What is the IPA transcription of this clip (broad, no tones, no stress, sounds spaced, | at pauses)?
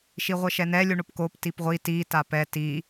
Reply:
ʃ i ʁʷ ɘ ʃ ɛ n ɛ lʲ u ɳ o p k o p t i p ʁʷ i t i t a p ɛ t i